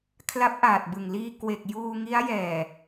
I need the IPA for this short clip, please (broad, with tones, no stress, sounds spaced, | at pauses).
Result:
kʰ l a˦˥ p̚ ʔ aː˨˩ t̚ b ɯ˨˩ ŋ l iː˧ k w e˨˩ k̚ j uː˧ ŋ i˦˥ a̯ j ɛː˨˩